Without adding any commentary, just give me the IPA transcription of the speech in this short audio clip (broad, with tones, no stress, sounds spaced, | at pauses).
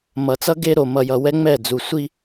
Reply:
m ʌ˨ t͡s ʌ˦ ɡ e˦ ɾ o˨ m ʌ˨ j ʌ˨ w ɛ˦ ŋ͡m ɛ˦˨ d͡z u˨ sʷ i˦